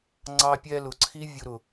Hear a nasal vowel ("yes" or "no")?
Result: no